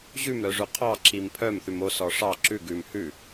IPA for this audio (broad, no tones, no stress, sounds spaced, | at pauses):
ʑ ʉ m ɾ œ ʐ ʉ qʰ ɑ ǁ i m pʰ œ m θ ʉ m o s ɔ ʂ ɑ ǁ ʉ ɡ ʉ m h ʉ